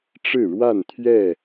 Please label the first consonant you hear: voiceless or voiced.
voiceless